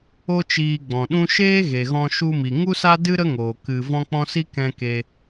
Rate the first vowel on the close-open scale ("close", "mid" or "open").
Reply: mid